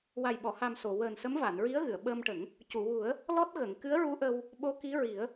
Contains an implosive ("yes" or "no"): yes